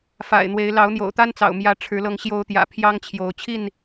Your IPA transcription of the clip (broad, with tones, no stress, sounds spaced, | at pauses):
f a̰˨˩ ɪ̯ n̪ w e˨˦ ɪ̯ l ɑ˨˦ ʊ̯ n̪ j o̰˨˩ ʊ̯ t̪ a˦ n t͡s ɑ̰˨˩ ʊ̯ m j ä˨˦ ʈ͡ʂʰ ɻ̩˨˦ l ɤ˧ ŋ ɕ j o˨˦ ʊ̯ t̪ j ä̰˨˩ pʰ j ɑ˦ ŋ t͡ɕʰ j o˨˦ ʊ̯ t͡ɕʰ i˥˨ n